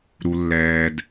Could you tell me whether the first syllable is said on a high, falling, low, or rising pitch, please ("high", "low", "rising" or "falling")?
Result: low